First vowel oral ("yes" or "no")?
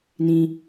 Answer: no